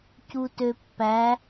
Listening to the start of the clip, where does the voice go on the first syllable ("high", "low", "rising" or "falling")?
low